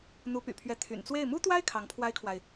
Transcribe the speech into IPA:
n̪ u˧˥ p y̰˨˩ pʰ ɥ ɛ˧˥ t̪ʰ y̰˨˩ n t͡s w e˥˩ ɪ̯ m u˥ t̪ w a˥ ɪ̯ kʰ ɑ˧˥ ŋ pʰ w a˥ ɪ̯ kʰ w a˨ ɪ̯

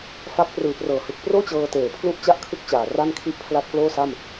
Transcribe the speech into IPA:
f a˦˥ k̚ p r ɯː˨˩ p r ɤː˩˦ h ɯ˨˩ k̚ p r oː˥˩ t͡ɕ ɤː˧ t eː˨˩ pʰ l u˥˩ ʔ t͡ɕ a˥˩ ʔ kʰ ɯ˥˩ k̚ t͡ɕ aː˨˩ r a˥˩ n kʰ i˥˩ ʔ pʰ l a˥˩ t̚ k l oː˥˩ s a˥˩ m

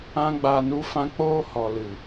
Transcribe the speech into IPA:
ã˦ ɡ͡b aː˧ n u˦ f ã˦ k͡p oː˦ h ɔ˨ l ɨ˨

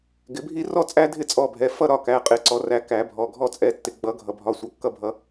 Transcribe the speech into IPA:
ɡ ɪ˨˩˦ bʱ i˦ r ɔ˥˨ t͡sʼ æ˦ dʱ ɪ˥˨ t͡sʼ ɔ˩˧˩ bʱ ɛ˩˧˩ f ʌ˥˨ ɾ ɒ˩˧˩ k æ˩˧˩ qʼ ɪ˨˩˦ ǀ ɔ˨˩˦ r æ˩˧˩ k æ˨˩˦ bʱ ɔ˩˧˩ ɡʱ ɔ˥˨ t͡sʼ ɛ˩˧˩ tː ɪ˩ ɡ͡b ʌ˨˩˦ ɡʱ ʌ˩ bʱ ɒ˩˧˩ sʷ ʌ˨˩˦ kː ʌ˥˨ bʱ ʌ˨˩˦

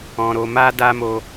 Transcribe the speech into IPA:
ɔ̃˧ ɾ o˧ m a˦ d a˦ m o˦

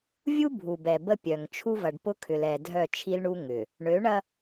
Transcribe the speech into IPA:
vʲ u˦ bʱ u˨ b ɛ˨ b ə˦ pʲ œ˨ ŋ t͡ʃʰ u˦ v ɐ˨ ɖ p ʊ˦ kʰ ʏ˨ l ɛ˨ dʱ œ˦˨ t͡ʃʰ i˦ l ɳ u˦ ŋ ʏ˨ | ɳ ø˨˦ ɳ ɐ˦

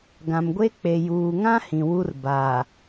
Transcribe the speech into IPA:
ɡ ã˨ m ɡʷ e˦ k͡p e˨ j uː˨ ŋ ã˦ h ĩ˨ w u˦ r b aː˨

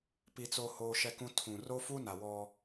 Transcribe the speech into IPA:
p i˦ t͡s o˦ h oː˦ ʃ ɛ˦ k ũ˦ tʰ ũ˨ r o˦ f uː˦ n a˨ w ɔ˦

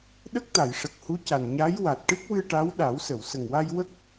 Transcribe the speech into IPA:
ɗ ə˦˥ k̚ t̪ a˨˩˨ j ʂ ə˨˩ k̚ h u˧˥ c a˨˩ n ɲ a˧˥ j w a˨˩ t̚ ʈ ɨ˦˥ k̚ w ɨ˧ ʈ a˧˥ w ɗ a˨˩˦ w s ə˨˩˨ w s ə˨˩ ŋ w a˧ j w ə˦˥ k̚

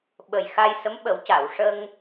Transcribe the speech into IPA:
ɓ ə˨˩ j x a˧ j s ə˧˥ m ɓ ə˨˩˦ w c a˨˩˨ w ʂ ə˧ ŋ

